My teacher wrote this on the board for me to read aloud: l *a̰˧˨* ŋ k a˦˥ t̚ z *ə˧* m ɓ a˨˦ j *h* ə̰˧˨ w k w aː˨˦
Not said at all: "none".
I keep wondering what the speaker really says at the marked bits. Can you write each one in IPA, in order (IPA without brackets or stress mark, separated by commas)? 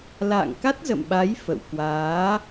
a̰ː˧˨, ə̰˧˨, f